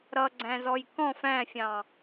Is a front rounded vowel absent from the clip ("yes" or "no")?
yes